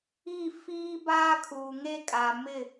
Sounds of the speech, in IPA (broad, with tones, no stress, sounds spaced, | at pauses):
i˦˨ f iː˦ b aː˦ kʰ uː˨ ŋ e˦ kʼ a˨ m ɪ˦˨